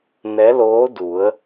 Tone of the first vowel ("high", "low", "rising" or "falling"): rising